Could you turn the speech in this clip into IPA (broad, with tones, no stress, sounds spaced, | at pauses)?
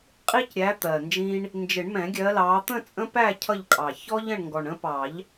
qʼ i˦ c ɾʲ æ˨˦ t̪ ɜ˨˩ n d͡ʒ ĩ˦ ɳ | n d͡ʒ ɪ˨˩˦ ɳ m ɛ̃˨˩˦ ɡʲ ɜ˨˦ l ɑː˨˦ t̪ ə̃˥˨ t͡sʼ ə̃˦ p æ˥˨ cʰ ʌ˥˨ ʎ kʼ ɑ˨˩ ç ɔ˦ ʎ ə̃˥˨ ɳ ŋ ɡ ɔ˨˩ ɳ ə̃˦ p ɑ˨˩˦ ʎ